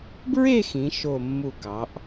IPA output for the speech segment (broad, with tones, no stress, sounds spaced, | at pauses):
b ɹ e˥˧ x ĩ˩˧ ʃ o˧˩ mː u˧˩ k ɑ˩˧ ʔ